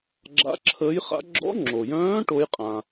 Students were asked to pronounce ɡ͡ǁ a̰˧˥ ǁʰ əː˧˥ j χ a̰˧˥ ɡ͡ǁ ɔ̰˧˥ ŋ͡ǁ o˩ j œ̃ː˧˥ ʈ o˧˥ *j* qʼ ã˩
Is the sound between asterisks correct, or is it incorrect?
correct